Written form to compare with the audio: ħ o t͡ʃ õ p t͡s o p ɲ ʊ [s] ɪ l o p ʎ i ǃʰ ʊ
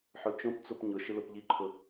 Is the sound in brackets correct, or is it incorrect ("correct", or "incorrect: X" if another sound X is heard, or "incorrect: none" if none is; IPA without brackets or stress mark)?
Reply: incorrect: ʃ